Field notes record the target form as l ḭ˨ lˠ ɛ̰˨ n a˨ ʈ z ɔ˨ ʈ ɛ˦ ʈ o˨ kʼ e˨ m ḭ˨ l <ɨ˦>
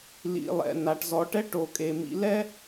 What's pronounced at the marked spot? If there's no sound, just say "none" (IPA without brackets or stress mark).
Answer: ɛ˦